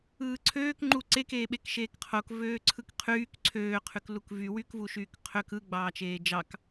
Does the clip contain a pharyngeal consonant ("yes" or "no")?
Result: no